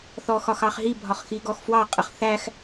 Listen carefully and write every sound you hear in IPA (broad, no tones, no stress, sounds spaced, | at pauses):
θ ɔ x ɒ x ɑ χ ɦ i bʱ ɒ χ x i ɡ ɔ x f w ɑ qʼ ə χ θ æ x